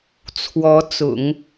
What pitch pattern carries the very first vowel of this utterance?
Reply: rising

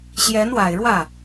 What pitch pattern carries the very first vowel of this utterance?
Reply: rising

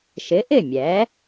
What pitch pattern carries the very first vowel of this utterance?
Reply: rising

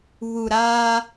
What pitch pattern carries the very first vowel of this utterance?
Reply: low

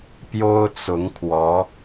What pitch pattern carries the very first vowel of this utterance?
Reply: high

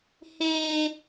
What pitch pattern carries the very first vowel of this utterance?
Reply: high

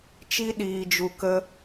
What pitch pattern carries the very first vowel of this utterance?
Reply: high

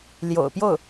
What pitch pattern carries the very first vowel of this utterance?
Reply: low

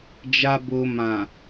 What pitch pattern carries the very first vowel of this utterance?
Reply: low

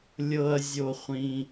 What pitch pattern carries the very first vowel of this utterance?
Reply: low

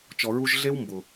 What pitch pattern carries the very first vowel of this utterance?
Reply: low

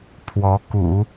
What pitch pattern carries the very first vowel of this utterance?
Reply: rising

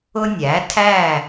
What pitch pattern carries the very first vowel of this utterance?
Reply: high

